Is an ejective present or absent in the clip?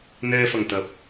absent